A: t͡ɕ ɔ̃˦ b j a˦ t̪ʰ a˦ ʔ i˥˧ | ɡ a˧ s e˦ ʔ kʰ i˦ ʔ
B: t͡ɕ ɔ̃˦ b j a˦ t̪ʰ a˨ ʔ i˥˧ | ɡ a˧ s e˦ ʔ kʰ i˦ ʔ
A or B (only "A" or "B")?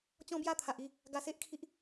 B